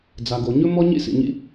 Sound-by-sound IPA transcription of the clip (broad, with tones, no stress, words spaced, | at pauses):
d͡za˨ɡo˨ ɲɵ˦ mɔ˦ɲḭ˦sḭ˨ɲḭ˦